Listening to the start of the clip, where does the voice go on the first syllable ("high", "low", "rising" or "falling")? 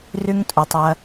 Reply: high